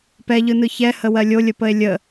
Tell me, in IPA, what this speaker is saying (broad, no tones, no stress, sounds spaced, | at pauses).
p ɛ ʎ ɯ n ɯ ç ɛ h ə w ɜ lʲ o lʲ ə p ə e̯ lʲ ə